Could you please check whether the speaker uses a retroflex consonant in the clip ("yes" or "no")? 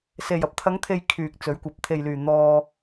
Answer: no